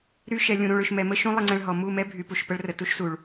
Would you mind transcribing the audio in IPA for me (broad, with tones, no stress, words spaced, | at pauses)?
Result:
ɾy˧ʃɛ˨ lʲũ˨ɾũ˨ɭø˨ʃ mɛ˨mə˦ʃũ˦ lˠə˧ŋ͡ǀɛ̃˧ɭɦɔ˨ mu˦˨mɛ˦bʱy˨ pu˨ʃpə˦ɭrə˨tu˦ʃ su˨ɭ